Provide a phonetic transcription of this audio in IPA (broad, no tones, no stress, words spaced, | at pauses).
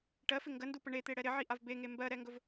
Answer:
ʈɜfɪ ŋɡəndupə ɳet̪eɽɛ ɾɪʕiʔav beŋe mbɜɾɛŋɡɵv